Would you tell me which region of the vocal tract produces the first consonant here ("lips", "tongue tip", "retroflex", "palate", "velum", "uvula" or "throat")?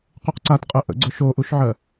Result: uvula